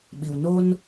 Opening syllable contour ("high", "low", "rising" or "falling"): low